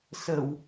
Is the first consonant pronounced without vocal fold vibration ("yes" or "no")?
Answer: yes